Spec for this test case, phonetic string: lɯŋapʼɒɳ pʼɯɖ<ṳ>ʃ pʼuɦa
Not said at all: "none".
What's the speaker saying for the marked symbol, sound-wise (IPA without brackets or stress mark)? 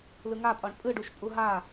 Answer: u